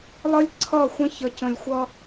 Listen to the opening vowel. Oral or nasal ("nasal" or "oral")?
oral